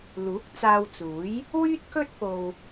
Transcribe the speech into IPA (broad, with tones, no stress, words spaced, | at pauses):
luː˨˥k̚ t͡saː˧wt͡suː˨˥j | wyː˥t̚kɵ˥t̚ po˧w